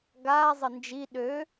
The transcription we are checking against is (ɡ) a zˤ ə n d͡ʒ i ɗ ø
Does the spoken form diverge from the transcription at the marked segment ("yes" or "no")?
no